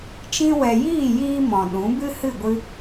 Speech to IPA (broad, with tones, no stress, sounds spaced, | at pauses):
t͡ʃ ĩ˧ w ɛ˨ j iː˦˨ j iː˦ m ɔ̃˨ ɗ ũ˨˦ b ɨ˦ h ɨ˦˨ ɡʷ ɨ˧